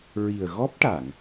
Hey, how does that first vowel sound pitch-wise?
low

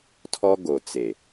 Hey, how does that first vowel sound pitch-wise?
high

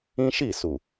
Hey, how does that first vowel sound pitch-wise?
high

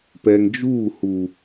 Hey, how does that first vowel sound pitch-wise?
low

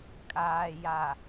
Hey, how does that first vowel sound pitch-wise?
low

